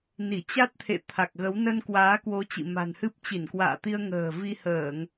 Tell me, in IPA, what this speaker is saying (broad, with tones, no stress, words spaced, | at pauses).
ni˧˩t͡ɕa˦˥t̚t̪ʰḛ˧˨ t̪ʰa˨˩k̚ɣə˨˦w nə˧n kwaː˨˦kwo˨˦ t͡ɕḭ˧˨ma̤˨˩nhɨ˦˥p̚ t͡ɕi˧˩nkwa̰ː˧˨t̪i˧ə̯ ŋə̤ː˨˩ vi˧həː˧˩˨ŋ